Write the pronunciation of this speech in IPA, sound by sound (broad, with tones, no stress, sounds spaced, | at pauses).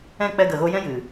ɛ̃˦˨ k͡p ɛ˧ ɡ ə˨ ɣ o˧ j ɛ̃˦ j ɨ˨